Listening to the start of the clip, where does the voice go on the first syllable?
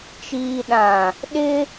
low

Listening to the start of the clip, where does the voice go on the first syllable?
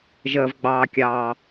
low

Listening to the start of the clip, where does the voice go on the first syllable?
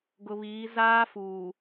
low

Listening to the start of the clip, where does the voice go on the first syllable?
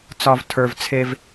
low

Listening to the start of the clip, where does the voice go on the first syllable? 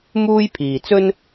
high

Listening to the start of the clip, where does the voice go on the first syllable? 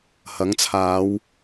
rising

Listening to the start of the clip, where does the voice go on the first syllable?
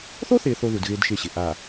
high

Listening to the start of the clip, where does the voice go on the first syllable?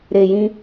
low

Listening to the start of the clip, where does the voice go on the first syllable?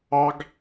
high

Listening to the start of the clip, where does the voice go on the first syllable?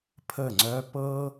falling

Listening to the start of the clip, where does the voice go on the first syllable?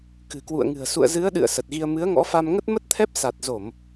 low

